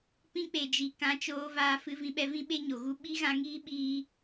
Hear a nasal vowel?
yes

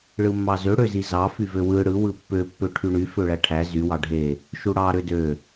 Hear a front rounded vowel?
yes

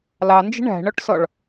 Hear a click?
no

